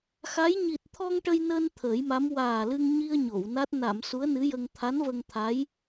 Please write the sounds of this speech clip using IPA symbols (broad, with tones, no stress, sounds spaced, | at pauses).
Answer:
x a˧˥ j ɲ i˨˩ t̚ t̪ʰ ɔ˧ ŋ ʈ ə˧ j n əː˧ n t̪ʰ əː˨˩˦ j m a˧˥ m w aː˨˩ l ɨ˧ ŋ ɲ i˧ ə̯ ɲ o˨˩˨ w n a˦˥ t̚ n a˨˩˨ m s u˧˥ ə̯ n ɨ˧˥ j ə˧ ŋ t̪ʰ a˧˥ n v ə˧ ŋ t̪ʰ a˧˥ j